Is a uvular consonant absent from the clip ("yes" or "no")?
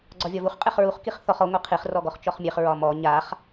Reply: no